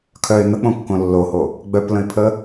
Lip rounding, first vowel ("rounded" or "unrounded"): rounded